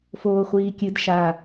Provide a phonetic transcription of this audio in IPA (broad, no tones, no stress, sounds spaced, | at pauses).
f oː χʷ iː kʲ ɨ d ʃ a